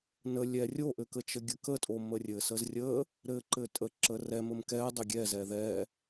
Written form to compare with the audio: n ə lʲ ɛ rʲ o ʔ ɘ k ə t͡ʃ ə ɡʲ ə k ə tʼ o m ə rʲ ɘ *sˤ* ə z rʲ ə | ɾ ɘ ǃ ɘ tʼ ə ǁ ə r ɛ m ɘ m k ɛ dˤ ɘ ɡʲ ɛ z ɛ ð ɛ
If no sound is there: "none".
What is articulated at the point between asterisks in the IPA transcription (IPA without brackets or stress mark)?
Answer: s